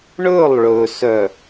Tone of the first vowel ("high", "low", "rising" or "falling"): falling